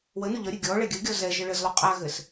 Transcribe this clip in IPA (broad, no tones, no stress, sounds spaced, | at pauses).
w ə n u ʎ ʌ ɾʲ ɘ ɡʲ ɔ ɭ ɛ ɡʲ ə ɡʲ ɔ z ɛ ʒ ɘ ɭ ɘ z lˠ u qʼ a ɣ ɘ s